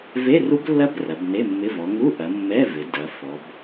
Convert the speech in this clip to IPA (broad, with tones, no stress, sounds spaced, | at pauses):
v e˧˥˧ r u˦˥ b lː ɐ˦˥ b r ɐ˩˧ b n e˧˥˧ mː ɪ˧˥˧ v ɔ˩˧ ŋ u˧˥˧ ʔ ɐ˩˧ mː ɛ˧˥˧ v ɪ˩˧ d ɐ˩˧ f ɔ˩˧ b